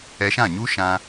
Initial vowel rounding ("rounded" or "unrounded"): unrounded